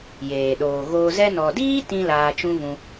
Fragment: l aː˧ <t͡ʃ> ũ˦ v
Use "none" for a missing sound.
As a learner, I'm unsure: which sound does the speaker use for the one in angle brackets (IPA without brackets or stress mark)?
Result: t͡ʃ